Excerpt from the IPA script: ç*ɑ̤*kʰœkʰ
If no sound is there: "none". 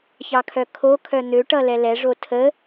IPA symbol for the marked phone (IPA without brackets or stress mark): ɑ